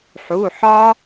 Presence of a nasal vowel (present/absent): absent